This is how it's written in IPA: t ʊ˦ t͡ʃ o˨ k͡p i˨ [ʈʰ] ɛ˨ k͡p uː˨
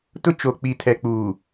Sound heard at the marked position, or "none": tʰ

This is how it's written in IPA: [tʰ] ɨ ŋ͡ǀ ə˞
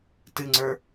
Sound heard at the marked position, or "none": t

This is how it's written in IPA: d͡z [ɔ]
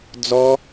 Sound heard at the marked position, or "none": ɔ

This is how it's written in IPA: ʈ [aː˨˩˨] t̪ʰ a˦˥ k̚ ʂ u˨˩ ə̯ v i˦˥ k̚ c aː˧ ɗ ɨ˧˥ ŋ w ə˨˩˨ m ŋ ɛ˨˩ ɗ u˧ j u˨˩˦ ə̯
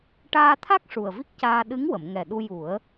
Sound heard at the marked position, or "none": aː˧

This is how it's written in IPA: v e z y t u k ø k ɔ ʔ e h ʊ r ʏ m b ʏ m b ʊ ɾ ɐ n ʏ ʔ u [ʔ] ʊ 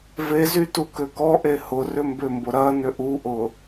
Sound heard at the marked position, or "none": ʔ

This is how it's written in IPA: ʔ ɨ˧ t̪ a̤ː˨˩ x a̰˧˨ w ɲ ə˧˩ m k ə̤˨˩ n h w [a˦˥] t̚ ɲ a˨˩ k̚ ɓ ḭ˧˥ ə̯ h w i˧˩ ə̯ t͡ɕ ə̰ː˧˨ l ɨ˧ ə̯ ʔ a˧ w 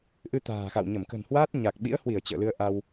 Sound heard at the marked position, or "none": a˦˥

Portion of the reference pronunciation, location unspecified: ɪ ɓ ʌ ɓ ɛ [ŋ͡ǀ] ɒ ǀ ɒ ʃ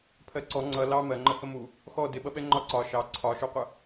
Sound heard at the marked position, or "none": ŋ͡ǃ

